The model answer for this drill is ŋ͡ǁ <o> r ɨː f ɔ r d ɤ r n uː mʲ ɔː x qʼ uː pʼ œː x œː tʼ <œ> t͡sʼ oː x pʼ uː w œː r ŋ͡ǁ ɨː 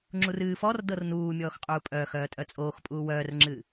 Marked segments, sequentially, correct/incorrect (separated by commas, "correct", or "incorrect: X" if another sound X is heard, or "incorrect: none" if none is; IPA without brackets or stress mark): incorrect: u, correct